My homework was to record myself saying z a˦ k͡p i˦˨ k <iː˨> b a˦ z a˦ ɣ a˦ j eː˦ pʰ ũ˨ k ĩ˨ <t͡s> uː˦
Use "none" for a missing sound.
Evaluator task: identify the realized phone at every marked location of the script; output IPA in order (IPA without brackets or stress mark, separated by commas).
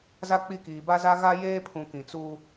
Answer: iː˨, t͡s